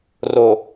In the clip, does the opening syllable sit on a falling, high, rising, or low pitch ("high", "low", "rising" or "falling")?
low